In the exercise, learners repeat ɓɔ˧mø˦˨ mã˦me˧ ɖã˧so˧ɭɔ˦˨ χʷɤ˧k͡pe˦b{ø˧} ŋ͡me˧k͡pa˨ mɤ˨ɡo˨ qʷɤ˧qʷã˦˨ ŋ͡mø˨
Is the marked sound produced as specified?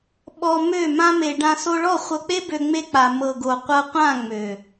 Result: yes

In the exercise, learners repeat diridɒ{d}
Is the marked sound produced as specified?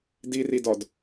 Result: yes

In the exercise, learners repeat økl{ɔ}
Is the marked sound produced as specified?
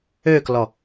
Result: yes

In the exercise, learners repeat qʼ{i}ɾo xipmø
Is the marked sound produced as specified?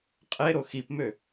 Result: no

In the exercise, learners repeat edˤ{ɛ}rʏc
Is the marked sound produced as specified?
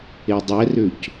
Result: yes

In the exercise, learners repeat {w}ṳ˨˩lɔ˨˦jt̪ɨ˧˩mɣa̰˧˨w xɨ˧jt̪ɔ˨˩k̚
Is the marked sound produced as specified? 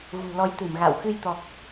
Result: no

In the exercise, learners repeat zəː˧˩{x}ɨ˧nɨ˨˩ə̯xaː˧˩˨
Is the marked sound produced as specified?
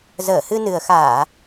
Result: no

